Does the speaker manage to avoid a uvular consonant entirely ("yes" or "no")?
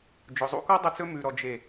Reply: yes